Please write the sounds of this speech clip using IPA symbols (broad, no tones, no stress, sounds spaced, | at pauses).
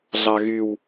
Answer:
ɮ ɑ ɣ y w